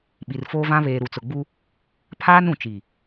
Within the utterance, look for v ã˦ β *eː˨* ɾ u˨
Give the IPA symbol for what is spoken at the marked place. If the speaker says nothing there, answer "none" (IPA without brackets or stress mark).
eː˨